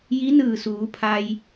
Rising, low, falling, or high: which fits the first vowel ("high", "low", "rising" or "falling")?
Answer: rising